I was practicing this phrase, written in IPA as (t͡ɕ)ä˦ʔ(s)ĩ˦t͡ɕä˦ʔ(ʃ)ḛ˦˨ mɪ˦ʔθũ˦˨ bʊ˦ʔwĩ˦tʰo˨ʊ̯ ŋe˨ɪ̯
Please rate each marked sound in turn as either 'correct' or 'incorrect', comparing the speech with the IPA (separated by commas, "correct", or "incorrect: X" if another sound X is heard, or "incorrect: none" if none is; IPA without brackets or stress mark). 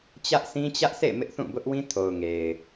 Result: correct, correct, incorrect: s